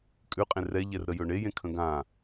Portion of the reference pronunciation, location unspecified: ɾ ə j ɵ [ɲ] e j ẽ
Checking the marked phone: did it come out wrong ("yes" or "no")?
yes